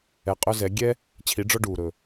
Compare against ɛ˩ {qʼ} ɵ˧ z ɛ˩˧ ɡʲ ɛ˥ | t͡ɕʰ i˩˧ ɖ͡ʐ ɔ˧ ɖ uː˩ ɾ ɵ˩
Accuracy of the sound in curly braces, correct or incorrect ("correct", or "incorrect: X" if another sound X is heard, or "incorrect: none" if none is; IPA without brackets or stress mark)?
correct